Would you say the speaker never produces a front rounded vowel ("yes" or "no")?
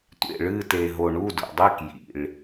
yes